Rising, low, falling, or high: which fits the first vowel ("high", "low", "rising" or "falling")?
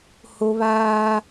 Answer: high